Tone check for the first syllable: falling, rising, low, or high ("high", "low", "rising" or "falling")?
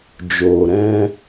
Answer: low